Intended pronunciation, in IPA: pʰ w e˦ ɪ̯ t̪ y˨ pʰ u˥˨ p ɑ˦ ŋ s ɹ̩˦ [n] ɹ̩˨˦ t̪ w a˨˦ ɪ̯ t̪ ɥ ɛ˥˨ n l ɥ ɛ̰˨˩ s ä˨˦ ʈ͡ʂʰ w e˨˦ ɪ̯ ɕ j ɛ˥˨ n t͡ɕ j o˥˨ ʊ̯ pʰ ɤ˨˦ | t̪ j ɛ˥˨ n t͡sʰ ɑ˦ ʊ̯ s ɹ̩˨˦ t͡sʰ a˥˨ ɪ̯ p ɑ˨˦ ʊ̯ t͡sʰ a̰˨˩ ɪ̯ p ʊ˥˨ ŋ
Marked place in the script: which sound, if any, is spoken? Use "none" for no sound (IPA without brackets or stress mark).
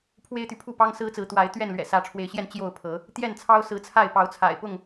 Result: t͡s